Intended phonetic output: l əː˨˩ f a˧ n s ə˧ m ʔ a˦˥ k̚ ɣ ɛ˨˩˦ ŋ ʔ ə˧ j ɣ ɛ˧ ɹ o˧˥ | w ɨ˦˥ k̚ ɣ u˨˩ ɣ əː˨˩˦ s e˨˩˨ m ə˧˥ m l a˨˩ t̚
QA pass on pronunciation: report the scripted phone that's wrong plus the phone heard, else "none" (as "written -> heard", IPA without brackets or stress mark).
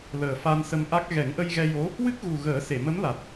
ɹ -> j